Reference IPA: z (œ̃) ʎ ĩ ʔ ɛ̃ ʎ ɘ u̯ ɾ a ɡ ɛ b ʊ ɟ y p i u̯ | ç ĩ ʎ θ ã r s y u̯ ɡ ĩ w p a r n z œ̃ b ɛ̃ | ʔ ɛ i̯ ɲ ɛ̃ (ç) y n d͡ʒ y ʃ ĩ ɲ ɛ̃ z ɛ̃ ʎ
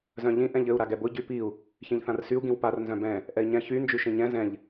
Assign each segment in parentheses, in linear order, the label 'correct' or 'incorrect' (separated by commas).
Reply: correct, correct